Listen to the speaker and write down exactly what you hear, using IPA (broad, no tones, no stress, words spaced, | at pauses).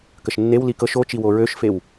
kəʃnːew likɤʃ ot͡ʃiwo ɹøʃfew